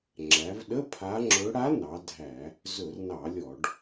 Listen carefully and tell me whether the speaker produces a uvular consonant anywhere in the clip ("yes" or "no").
no